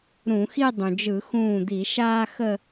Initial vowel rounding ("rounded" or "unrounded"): rounded